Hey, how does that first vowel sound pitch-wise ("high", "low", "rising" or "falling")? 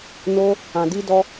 high